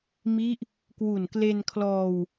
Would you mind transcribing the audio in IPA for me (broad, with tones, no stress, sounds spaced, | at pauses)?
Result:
m i˦˥ ʔ | k w u˨˩ n k l e˧ n kʰ l ɔː˧ w